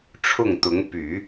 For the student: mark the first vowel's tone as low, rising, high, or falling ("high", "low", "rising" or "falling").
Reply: falling